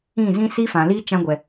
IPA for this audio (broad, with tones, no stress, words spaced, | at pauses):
ĩ˦˨zĩ˦ siː˦fã˨liː˦ t͡ʃã˧ɡʷɛ˨